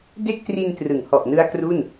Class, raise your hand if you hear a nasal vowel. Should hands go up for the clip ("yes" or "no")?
no